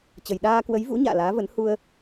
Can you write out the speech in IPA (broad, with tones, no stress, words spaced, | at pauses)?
t͡ɕə˨˩jɗaː˧kwə˨˦jvṵ˧˥ ɲa̰ː˧˨laː˨˦və˨˦n hu˧ə̯